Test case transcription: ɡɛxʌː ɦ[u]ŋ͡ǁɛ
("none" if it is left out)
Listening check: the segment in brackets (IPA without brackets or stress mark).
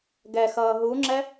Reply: u